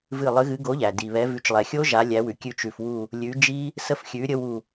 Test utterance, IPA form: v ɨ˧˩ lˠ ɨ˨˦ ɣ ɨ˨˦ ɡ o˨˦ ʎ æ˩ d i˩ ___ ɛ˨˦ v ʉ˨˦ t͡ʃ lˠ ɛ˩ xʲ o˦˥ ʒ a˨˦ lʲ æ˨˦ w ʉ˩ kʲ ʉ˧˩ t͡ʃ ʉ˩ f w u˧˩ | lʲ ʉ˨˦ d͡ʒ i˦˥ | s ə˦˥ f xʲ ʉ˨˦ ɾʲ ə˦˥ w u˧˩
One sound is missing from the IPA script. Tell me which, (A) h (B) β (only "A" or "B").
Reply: B